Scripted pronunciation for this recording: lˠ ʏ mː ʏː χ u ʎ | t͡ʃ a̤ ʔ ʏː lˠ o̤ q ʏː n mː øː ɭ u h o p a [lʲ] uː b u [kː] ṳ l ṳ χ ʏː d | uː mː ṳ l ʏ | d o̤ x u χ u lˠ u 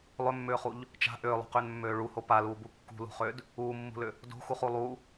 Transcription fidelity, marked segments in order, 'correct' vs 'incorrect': incorrect, correct

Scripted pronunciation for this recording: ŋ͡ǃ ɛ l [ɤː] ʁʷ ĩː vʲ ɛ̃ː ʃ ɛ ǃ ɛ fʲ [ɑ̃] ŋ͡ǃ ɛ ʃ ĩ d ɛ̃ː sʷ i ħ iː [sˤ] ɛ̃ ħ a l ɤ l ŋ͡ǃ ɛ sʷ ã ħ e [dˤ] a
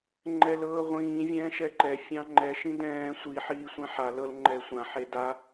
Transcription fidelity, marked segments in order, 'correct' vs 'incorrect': correct, correct, incorrect, incorrect

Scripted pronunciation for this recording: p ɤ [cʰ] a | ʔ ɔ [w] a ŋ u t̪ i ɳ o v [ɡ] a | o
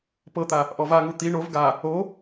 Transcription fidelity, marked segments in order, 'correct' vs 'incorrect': incorrect, incorrect, correct

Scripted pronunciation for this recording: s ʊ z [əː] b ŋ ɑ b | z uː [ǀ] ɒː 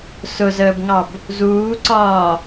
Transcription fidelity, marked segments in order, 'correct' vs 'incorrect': correct, correct

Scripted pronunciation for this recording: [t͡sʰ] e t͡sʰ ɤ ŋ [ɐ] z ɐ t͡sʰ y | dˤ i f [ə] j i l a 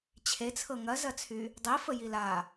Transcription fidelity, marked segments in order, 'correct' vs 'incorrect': incorrect, correct, correct

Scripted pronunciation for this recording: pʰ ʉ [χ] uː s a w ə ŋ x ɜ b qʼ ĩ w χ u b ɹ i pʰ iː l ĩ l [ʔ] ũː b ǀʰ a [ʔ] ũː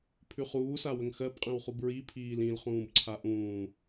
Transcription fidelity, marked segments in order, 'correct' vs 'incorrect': correct, incorrect, correct

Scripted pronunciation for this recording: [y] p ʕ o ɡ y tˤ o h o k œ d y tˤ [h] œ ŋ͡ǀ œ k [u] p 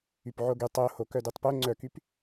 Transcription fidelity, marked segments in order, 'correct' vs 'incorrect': correct, incorrect, incorrect

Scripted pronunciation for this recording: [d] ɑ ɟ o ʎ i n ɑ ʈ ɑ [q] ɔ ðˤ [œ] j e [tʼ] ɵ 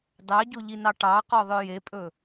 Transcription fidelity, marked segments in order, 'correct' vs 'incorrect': correct, correct, correct, incorrect

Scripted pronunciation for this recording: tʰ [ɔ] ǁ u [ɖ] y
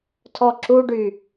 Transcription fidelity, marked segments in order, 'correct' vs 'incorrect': correct, correct

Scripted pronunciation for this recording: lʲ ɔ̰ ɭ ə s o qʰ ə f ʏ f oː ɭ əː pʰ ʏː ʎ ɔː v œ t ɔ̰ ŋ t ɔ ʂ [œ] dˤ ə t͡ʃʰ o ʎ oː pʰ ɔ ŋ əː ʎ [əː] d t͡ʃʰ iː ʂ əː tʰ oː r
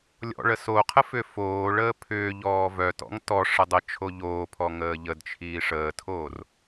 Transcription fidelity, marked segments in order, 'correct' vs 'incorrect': incorrect, incorrect

